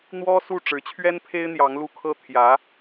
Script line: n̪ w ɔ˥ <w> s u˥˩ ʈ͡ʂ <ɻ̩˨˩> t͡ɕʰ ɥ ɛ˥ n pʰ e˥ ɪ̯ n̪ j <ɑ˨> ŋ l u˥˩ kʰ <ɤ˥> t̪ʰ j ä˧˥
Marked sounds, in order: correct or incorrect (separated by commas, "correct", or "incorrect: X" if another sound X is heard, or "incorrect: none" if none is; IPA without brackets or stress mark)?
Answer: incorrect: none, incorrect: ɻ̩˧˥, incorrect: ɑ˧˥, correct